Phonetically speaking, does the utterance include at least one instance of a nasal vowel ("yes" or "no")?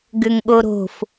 no